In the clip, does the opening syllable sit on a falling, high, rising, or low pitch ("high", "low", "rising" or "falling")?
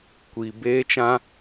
high